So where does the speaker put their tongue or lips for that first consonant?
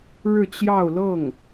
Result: retroflex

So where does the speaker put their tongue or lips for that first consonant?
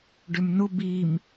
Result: retroflex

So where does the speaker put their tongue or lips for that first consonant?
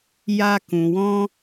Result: palate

